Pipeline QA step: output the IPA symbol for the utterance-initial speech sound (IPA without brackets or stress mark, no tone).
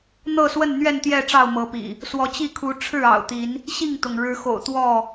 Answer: n̪